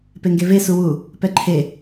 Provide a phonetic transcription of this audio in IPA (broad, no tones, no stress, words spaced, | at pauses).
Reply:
peŋɡeve suwu | pɛǃʰe